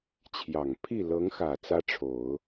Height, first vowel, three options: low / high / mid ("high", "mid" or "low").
low